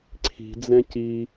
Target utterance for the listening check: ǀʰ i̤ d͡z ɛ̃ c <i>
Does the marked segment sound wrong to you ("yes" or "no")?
no